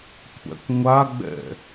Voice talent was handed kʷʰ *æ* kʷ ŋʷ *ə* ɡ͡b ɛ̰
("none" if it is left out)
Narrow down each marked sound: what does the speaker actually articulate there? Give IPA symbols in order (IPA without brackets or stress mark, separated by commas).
æ̰, a